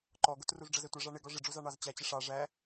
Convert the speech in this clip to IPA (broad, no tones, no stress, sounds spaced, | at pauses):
ǃ ɔ ɡ ʊ t r u z ɖ͡ʐ ʌ z ɛ tʷ ʌ ʐ ɑ ɳ ɪ ɡ ɔ ʐ ɪ ɖ͡ʐ u z ɑ ɳ ɑ z t͡ɕ æ t͡ɕ ɪ ʂ ɑ ʐ æ